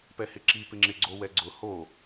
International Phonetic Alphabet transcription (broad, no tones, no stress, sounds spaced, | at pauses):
p ɛ h ɪ ǁ i p ɪ ŋ͡ǁ ɪ ɡ͡ǀ o w ɛ ɡ͡ǀ ʊ h o